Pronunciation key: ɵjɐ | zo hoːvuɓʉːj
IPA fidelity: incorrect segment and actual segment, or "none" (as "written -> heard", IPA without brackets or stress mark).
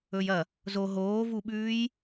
h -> ɦ